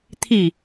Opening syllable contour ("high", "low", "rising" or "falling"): falling